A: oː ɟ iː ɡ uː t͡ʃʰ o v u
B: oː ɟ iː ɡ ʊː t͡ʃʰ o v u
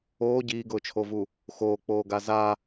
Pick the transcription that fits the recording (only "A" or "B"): B